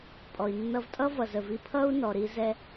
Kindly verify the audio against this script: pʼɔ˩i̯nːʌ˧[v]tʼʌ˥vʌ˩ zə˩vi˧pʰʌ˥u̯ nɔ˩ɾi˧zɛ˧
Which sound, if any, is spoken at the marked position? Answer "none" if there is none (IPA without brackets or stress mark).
v